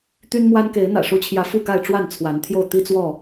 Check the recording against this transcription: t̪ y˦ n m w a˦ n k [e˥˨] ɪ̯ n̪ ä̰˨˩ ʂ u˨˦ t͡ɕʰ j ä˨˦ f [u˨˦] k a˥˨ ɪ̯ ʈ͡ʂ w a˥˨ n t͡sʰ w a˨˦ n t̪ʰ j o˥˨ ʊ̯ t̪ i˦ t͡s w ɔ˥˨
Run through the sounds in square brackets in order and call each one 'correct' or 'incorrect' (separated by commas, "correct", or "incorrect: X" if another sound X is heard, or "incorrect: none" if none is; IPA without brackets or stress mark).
incorrect: e˨˦, incorrect: u˥˨